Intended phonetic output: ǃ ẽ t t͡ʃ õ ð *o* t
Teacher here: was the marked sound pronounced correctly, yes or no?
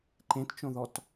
no